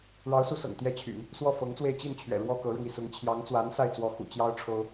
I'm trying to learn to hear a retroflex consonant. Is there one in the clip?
yes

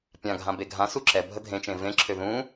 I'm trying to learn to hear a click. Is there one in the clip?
yes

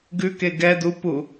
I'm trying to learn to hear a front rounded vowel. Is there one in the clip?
no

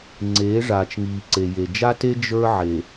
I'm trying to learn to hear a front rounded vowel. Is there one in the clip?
no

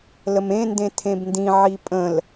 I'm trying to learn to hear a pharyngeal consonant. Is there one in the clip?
yes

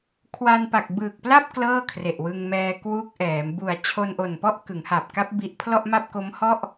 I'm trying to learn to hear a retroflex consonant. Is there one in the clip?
no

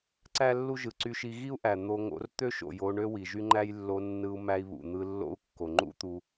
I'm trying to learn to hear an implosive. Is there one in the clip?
no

